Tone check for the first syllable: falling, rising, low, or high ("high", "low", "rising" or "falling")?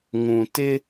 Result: low